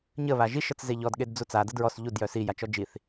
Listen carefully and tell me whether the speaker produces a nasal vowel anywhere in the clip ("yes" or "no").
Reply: no